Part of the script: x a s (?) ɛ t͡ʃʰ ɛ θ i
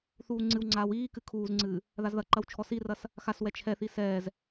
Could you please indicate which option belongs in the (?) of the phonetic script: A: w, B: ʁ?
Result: A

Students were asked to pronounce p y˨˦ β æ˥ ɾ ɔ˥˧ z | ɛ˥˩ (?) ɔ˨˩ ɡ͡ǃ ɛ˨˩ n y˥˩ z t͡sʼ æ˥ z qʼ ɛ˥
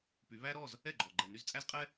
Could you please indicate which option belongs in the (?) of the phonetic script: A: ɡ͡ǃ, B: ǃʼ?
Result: A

